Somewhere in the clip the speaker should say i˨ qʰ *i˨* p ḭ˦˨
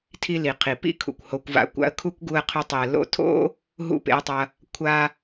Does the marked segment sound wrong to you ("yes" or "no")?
no